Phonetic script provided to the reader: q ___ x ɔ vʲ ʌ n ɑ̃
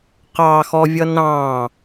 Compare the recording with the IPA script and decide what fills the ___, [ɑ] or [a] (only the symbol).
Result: ɑ